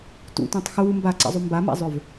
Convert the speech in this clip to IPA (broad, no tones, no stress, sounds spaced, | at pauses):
t ṵ tʷ ɛ̃ tˤ x uː m b a ǀ ɛ̰ zˤ u m b a m a̰ zˤ ʏ v